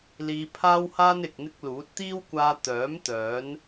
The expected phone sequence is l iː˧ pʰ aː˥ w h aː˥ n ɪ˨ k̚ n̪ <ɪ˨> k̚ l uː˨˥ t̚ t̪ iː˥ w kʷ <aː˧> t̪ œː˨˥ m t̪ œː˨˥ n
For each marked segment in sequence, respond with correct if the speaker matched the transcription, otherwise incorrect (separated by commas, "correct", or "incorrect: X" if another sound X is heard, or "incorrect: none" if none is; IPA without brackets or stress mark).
incorrect: ɪ˥, correct